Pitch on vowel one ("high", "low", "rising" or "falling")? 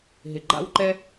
low